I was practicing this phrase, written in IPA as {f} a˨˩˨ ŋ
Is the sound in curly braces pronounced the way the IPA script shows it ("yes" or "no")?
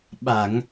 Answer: no